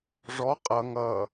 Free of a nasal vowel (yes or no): yes